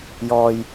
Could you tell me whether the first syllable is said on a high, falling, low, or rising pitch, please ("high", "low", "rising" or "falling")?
low